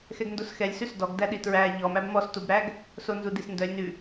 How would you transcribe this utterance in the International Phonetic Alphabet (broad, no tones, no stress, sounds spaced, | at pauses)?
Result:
x ɛ ɡ n d o s x ɛ lʲ s ʉ s d ɔ ɡ d æ ɗ i t ɹ æ ʎ ɔ m æ b m ɔ s t u b ɾ æ ɡ | s o n z u d i s n d œ lʲ n ʉ